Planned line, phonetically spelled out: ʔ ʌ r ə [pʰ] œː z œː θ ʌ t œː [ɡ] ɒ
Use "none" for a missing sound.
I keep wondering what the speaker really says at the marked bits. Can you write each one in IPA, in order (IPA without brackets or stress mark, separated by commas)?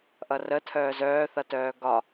tʰ, ɡ